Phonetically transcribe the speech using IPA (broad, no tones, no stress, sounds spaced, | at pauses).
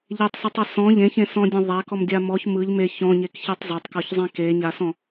ʎ e tˤ s ɯ tˤ a s ɔ̃ ʎ ẽ ç ẽ s ɔ̃ dʲ ẽ ðˤ a k ɔ m dʲ a m ɔ ç m ɯ ʎ m e ç ɔ̃ ɲ e k ç e tˤ zˤ a tˤ k ɔ ç zˤ ẽ k e ɲ a s ɔ̃